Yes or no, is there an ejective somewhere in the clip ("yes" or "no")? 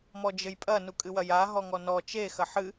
yes